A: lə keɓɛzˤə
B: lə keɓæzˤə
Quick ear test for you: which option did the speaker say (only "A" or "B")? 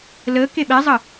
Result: A